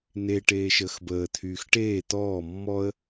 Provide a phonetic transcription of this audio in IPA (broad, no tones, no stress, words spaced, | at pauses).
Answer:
n̪e ʈeːʃəːxbəː t̪ʰyːxʈeː t̪ɔː mːɔə̯